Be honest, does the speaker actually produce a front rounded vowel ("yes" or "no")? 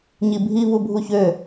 yes